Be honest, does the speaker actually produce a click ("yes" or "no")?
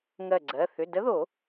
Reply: yes